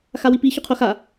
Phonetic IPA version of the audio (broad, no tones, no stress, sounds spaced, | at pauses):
x a w i p i ç u qʰ o x a